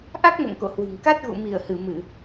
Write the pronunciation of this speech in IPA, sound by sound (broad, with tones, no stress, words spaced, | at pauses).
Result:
ʔa˦˥k̚mo̰˧˨ŋ ko̰˧˨hwɨ̤˨˩ŋ ka˦˥t̚ɣṵ˧˨ mi˧˩ə̯hɨ˧˩ mɨ˧˩˨